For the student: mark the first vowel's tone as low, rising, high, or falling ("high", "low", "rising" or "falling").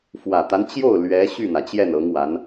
low